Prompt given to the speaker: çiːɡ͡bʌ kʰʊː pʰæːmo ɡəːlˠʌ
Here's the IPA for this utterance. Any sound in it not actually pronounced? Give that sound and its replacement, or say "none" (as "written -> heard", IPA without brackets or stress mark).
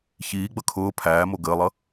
none